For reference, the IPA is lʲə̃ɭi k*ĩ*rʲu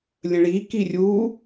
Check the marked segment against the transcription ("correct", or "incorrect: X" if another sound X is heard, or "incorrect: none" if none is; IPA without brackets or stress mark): incorrect: i